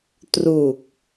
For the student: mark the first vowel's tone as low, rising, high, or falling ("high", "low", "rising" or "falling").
low